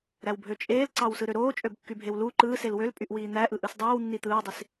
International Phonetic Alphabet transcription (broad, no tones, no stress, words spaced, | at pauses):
ɾæwbʱøt͡ʃʼeːl ǀɑwsɯɾøɾoː t͡ʃʼøbkːybʱewlu ǃɯːsel wølpʼyʔ wiːn̪æ ʔɯʔɯsdˤoːw nːit̪ɯːwdˤis